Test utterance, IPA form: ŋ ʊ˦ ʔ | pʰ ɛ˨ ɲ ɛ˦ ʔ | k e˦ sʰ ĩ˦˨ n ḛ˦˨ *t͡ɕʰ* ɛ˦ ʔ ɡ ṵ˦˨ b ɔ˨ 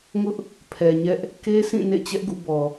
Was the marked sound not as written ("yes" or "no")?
yes